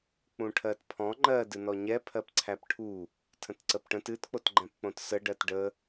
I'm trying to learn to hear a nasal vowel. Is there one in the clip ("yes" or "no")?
yes